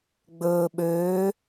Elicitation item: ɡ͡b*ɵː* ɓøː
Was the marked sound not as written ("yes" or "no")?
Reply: no